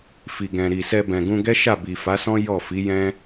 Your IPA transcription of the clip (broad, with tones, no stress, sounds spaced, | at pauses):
f i˨ ɡ ɛ̃˨ ɾ i˨ s ɛ˧ b ɛ̃˨ ɡ ũ˧ ɡ ɛ˦ ʃ a˦˨ b i˨ f a˨˦ s ɔ̃˦ j ɔ˦˨ f i˨˦ j ɛ̃˦